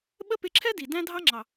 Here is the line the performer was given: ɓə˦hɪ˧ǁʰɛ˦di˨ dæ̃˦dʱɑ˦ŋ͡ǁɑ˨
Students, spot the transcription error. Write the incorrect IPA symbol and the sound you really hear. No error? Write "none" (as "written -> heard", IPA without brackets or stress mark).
h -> p